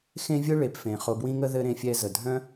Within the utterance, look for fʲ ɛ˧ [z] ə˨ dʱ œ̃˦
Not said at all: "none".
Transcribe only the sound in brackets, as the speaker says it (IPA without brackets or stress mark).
z